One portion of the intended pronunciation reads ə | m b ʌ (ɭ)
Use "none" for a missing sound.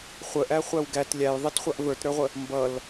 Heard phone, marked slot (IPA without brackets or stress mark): l